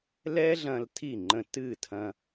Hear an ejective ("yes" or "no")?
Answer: no